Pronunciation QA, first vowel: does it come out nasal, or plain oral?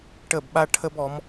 oral